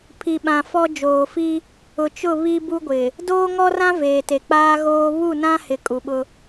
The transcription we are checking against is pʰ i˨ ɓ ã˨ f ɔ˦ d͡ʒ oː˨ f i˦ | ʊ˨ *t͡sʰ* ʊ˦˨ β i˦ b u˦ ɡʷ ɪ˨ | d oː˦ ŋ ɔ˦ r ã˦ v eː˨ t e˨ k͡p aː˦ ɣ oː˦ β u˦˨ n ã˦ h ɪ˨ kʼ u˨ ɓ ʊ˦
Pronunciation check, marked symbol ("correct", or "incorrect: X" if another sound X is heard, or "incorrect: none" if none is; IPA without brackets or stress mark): incorrect: t͡ʃ